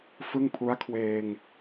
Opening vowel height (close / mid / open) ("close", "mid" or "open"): close